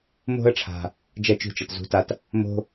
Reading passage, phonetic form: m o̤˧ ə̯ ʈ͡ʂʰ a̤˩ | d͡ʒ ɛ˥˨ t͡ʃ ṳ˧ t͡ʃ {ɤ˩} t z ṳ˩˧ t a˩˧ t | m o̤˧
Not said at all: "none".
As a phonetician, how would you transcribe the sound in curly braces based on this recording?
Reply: ɤ˩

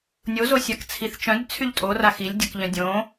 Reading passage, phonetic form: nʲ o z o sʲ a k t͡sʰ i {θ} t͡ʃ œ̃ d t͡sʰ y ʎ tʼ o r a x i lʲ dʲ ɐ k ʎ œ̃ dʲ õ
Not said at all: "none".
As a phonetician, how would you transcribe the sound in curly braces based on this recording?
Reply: θ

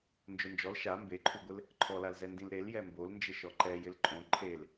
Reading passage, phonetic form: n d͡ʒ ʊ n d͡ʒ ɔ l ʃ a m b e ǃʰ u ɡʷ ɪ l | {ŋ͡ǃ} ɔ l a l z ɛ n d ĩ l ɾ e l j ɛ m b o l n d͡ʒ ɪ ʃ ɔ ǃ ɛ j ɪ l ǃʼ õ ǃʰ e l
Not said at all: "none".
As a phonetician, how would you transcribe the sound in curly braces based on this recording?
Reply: ǃʰ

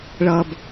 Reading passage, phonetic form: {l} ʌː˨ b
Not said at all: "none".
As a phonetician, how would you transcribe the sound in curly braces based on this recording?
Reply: ɭ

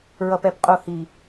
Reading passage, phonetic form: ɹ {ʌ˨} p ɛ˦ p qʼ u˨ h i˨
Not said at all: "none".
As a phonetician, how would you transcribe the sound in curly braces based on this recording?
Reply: ʌ˨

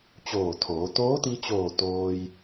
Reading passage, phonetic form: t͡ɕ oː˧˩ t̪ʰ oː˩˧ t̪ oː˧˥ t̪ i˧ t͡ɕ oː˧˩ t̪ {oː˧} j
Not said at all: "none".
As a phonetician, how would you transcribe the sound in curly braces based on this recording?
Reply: oː˧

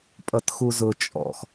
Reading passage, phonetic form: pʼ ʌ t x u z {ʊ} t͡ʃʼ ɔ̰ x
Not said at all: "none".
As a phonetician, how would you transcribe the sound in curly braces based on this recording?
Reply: ʊ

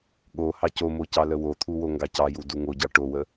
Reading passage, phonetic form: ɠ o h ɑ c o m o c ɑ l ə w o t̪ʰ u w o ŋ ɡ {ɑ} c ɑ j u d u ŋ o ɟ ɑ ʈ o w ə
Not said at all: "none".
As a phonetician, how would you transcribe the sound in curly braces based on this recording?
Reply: ɑ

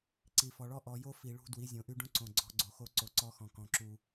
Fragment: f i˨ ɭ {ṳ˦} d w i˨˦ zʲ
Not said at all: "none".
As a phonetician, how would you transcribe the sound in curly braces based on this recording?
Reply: ṳ˦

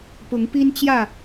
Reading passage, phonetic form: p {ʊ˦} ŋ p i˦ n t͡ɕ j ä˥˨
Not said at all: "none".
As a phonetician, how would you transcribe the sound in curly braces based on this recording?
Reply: ʊ˨˦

